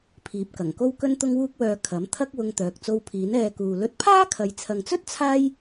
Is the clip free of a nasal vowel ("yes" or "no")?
yes